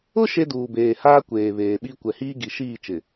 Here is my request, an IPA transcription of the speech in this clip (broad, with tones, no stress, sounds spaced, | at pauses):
ʊ˦ ʃ e˦ d uː˨ b eː˨ h aː˦ kʷ eː˨ β eː˨ ɓ i˦ kʷ ɛ˨ h iː˦ ɡ i˨ ʃ iː˦˨ t͡ʃ ɪ˨